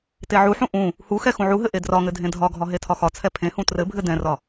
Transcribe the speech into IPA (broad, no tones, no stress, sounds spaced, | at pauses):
t e ʕ u ħ ũ ʔ ũ | h u x ɛ x ũ ʕ u ɦ ɘ ʔ e d r ɒ ŋ ɘ dʱ ẽ dʱ ɒ ɡʱ ɒ ɦ e tʰ ɒ x ɒ t͡sʰ ɛ pʰ ẽ h ũ t r ɘ bʱ ɘ d ɛ̃ r ɒ